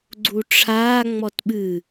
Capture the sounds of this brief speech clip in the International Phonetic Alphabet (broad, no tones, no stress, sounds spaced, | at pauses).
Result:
ɡ͡ǀ u ʈ͡ʂʰ aː ŋ͡m ɔ t ɓ ɨ